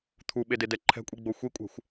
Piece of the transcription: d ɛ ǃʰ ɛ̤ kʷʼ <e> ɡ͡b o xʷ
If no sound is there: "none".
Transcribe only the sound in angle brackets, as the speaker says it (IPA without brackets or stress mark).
i